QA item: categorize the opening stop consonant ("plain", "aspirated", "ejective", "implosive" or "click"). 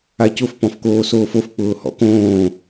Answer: plain